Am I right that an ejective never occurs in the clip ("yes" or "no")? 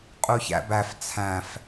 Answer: no